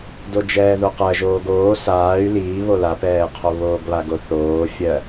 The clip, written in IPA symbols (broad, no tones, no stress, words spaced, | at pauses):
dod͡ʒɛːðoqɜ ʒoːɡoː saːy̯ liː βolapɛːqʰo βoːɡβaɡoθoː fʲɜ